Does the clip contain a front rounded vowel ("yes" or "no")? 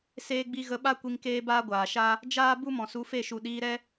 no